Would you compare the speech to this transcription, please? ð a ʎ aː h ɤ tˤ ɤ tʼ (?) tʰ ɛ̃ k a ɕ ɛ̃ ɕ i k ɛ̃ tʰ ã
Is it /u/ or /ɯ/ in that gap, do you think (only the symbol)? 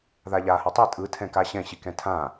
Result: ɯ